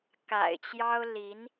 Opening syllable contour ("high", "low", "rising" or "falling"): low